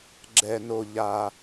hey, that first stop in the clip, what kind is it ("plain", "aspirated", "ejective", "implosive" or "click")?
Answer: click